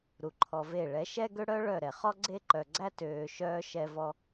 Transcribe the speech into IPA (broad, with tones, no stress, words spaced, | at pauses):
ɾu˨ǃʰɔ˧ve˦˨ ɭɛ˨˦ʃɛ˦ɡø˦ɽœ˦ ɭœ˦˨ɾɛ˨ χɔ˦ɡ͡ǀe˦ǃœ˨ɡ͡ǀæ˦ tøː˧ʃœː˦ ʃɛ˦vɔ˦